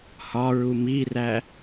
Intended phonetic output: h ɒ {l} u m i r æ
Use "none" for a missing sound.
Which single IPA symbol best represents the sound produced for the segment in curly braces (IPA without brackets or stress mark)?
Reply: ɹ